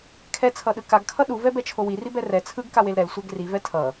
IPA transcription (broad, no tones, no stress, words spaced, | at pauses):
kʰɛt͡sʰʌɗɯ kaɡkʰʌ ɗuvɛbɛt͡ʃʰo wiribɛ rɛ t͡sʰɯɡkawel ɾɛlsʷɛɡ rivɛ tʰʌ